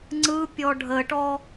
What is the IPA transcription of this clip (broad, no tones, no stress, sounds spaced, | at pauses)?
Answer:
ŋ͡ǀ ɯ pʲ ɔ ɖʱ ə ʈ ɔ